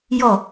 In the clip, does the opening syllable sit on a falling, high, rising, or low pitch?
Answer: falling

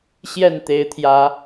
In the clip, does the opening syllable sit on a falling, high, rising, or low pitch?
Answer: falling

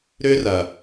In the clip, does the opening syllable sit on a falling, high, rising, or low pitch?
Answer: high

